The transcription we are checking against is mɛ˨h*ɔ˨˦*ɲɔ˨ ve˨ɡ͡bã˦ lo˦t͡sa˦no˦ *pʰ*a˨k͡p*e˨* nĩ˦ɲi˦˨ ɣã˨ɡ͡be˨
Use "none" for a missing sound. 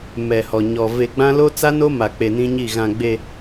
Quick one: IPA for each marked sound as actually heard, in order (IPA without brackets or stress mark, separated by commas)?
ɔ˨, m, e˨